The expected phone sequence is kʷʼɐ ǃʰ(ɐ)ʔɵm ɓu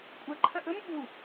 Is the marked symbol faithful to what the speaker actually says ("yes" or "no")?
yes